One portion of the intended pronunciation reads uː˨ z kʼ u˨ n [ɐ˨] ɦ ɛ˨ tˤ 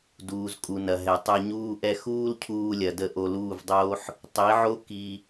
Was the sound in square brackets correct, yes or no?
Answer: yes